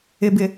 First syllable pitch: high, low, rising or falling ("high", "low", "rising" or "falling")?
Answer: low